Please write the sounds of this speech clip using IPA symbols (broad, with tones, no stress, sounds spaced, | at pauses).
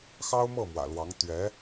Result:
x ɑ˥ ʊ̯ m ɤ˥˩ m w ä̰˨˩ l w ɑ˧˥ ŋ t̪ ɥ ɛ˧˥